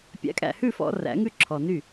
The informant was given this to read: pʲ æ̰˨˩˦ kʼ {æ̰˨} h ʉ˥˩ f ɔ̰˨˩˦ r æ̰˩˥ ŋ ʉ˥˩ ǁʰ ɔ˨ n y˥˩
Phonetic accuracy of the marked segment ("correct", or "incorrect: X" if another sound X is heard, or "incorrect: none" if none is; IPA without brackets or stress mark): correct